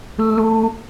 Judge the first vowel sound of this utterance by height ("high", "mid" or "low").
high